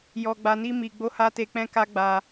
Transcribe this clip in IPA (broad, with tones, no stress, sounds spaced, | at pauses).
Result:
j ɔ˧ ɡ͡b a˧ n i˦ m i˧ ɡ͡b o˦ h a˦ t e˧ k͡p ɛ̃˦ k a˦ ɡ͡b a˧